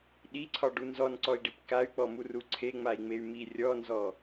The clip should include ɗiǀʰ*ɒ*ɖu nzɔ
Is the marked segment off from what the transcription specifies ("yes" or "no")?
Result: no